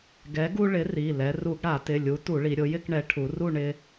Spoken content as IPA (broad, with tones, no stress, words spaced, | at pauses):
ɡɛ˨˥ɡu˦ ɭɪ˨˥ri˩˧˩ lɛ˩˧ru˧˩˧ɡɽa˧˩˧tɪ˩˧˩ lʲu˨˥tu˧˩˧ɭi˩˧ ɾʲʊ˩˧jɪ˥˨kɳɛ˩˧ ʈʰu˩˧ru˥˨ ɳɪ˦